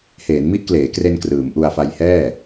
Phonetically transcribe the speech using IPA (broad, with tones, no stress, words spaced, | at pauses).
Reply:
heː˩˦nmi˦˥ʔkleː˩˦kre˧n krɯː˩˦mʔu˧a̯fa˧j hɛː˥˩